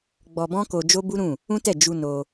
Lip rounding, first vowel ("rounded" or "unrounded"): rounded